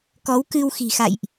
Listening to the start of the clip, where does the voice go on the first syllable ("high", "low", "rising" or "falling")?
rising